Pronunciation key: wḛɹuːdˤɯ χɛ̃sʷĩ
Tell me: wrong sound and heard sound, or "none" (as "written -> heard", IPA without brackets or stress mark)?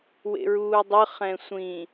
none